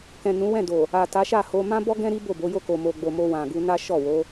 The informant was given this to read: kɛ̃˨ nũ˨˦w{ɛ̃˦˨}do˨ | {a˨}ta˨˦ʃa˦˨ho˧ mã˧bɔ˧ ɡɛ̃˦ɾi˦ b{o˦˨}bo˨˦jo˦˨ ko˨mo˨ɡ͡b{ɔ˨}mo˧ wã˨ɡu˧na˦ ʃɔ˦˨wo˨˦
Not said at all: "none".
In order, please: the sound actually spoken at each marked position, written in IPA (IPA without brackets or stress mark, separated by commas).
ɛ̃˦˨, a˨, o˦˨, o˨